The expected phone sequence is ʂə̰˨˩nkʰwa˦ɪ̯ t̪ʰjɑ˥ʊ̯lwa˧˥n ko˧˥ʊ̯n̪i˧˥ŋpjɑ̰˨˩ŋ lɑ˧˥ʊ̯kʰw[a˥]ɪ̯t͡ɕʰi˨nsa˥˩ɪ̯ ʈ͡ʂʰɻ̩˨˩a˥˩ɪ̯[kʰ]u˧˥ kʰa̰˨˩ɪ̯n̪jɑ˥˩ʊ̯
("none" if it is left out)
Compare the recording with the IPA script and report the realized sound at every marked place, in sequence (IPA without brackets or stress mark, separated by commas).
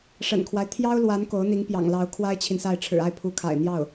a˥, pʰ